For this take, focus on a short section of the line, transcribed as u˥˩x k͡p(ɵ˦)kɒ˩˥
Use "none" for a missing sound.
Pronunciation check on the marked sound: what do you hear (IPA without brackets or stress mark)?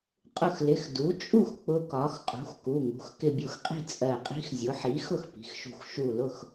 ʊ˦